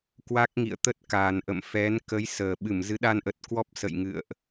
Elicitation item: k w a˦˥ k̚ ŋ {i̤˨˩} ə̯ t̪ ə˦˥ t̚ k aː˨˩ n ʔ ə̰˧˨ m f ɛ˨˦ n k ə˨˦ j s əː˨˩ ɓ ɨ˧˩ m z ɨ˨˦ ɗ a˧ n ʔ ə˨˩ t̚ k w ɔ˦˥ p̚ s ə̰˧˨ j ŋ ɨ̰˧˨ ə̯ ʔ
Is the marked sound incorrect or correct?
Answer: incorrect